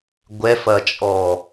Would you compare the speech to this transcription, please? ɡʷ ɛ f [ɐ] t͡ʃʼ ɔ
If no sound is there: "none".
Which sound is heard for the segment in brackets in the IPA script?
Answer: ɐ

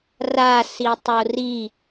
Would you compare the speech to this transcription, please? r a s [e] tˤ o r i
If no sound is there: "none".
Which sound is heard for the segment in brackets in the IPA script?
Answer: i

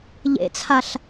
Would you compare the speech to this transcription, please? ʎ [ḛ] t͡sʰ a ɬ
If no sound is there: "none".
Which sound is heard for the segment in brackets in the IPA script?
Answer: ḛ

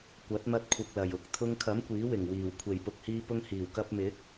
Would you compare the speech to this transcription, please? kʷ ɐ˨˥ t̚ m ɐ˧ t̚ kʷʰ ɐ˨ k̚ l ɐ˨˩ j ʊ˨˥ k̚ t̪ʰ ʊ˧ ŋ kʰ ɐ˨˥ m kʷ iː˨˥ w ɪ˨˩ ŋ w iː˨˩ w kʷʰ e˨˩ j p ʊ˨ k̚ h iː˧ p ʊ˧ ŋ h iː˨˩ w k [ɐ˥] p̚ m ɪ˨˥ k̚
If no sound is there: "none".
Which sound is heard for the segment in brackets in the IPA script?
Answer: ɐ˧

